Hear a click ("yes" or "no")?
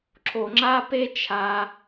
yes